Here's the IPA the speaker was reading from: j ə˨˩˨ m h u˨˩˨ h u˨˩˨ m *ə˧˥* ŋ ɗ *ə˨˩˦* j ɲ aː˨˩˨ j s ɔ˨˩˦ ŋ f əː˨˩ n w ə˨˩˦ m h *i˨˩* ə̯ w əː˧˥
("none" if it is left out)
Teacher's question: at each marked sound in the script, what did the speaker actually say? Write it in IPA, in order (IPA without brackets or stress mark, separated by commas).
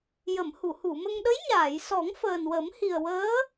ə˧, ə˧˥, i˨˩